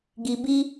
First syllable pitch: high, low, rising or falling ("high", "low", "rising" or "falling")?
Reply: low